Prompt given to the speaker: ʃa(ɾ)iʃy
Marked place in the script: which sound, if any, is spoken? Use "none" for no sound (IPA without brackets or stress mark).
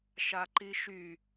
ǃ